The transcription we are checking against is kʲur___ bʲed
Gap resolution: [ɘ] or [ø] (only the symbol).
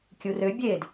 ø